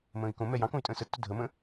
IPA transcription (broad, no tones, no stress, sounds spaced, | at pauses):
m ə̃ː i̯ k õ m ɛ j ɑ̃ k õ y̯ tʼ ə̃ː s ə tː ʊ dʱ ə m ə̃